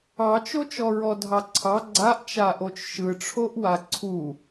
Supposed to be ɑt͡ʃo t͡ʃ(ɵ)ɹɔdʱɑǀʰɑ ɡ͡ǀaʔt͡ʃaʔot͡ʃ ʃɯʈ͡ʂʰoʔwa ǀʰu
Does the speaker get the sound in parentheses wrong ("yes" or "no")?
yes